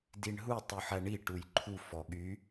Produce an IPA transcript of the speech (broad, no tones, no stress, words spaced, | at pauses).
diɳɦutˤ uħæɳi ʈujǃʰu fɔɠy